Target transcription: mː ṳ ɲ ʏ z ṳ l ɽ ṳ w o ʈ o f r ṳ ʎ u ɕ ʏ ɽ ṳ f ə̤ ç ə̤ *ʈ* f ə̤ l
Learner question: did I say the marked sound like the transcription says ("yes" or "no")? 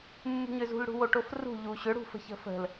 no